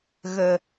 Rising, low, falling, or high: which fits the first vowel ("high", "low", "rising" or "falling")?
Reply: low